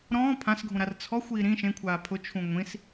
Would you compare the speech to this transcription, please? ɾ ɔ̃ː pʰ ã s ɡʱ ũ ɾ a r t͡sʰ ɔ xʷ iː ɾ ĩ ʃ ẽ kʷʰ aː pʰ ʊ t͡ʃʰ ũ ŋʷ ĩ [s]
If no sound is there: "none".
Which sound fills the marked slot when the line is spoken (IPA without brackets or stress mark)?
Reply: s